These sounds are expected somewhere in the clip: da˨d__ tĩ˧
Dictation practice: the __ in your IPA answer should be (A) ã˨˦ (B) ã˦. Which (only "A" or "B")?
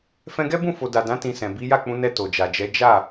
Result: A